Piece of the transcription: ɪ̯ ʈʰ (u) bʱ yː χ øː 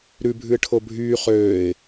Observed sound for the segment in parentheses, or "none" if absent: o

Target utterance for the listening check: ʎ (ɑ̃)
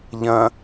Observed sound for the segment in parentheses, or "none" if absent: ɐ̃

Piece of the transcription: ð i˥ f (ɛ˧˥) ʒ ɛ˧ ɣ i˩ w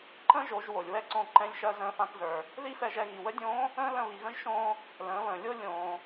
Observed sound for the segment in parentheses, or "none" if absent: ɛ˧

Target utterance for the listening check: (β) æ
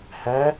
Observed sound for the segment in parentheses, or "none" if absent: h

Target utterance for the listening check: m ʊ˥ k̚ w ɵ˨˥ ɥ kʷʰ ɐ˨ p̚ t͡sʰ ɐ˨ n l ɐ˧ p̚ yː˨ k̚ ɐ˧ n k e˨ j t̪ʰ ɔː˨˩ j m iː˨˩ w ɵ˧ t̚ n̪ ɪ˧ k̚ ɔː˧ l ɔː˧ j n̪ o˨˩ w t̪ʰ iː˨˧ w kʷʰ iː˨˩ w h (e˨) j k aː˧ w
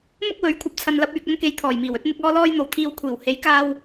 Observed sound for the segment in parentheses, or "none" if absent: e˨˥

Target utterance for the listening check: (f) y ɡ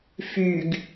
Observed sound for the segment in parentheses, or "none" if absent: f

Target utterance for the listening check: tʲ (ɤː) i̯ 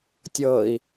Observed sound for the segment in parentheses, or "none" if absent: ɤː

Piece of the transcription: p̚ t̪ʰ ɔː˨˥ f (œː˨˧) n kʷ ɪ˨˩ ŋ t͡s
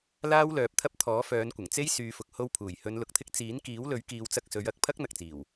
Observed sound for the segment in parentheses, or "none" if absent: œː˨˧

